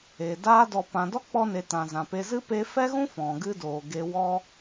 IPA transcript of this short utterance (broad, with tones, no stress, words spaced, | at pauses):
e˨ daː˧dɔ˨ pã˨dɔ˦k͡pɔ˧ne˨ tã˨zã˨pe˧ zɨ˦pe˧ fɛ˦ɣũ˦ fɔ̃˨ɡɨ˦doː˨ɡe˧ wɔ˧